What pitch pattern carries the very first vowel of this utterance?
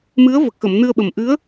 rising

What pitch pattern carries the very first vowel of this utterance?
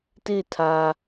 falling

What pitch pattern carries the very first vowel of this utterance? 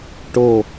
falling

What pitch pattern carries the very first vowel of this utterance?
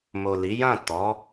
low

